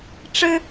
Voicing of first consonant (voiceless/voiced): voiceless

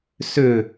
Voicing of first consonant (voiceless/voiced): voiceless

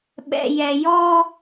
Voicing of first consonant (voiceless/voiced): voiced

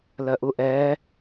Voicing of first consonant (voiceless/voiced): voiced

